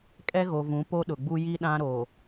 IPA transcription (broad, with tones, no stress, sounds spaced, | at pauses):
kʼ ɛ˦ ɣ o˨ v ũ˨˦ p o˦ ɗ ʊ˨ ɡ͡b u˦ j i˦ ɗ ã˦ ɾ o˨